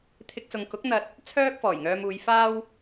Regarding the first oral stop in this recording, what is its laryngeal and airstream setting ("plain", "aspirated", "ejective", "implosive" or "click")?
aspirated